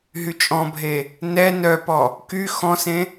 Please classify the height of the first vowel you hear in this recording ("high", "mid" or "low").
high